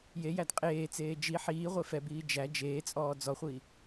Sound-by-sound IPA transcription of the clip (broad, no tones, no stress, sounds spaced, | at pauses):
j e j æ d qʼ eː t͡s eː d͡ʒ i ħ iː ʁʷ e f ɛ b iː d͡ʒ æ d͡ʒ eː t͡sʼ ɔː d͡z ɔ χʷ i